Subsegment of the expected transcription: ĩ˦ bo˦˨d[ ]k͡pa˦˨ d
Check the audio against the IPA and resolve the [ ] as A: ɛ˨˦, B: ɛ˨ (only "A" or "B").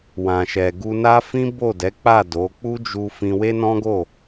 A